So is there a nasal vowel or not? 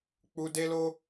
no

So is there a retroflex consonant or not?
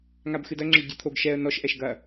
yes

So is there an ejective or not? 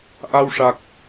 no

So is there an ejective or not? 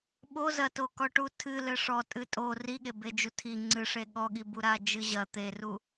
yes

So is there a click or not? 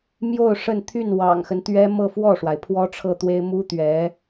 no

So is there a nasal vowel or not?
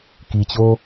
no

